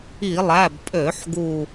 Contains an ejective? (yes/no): yes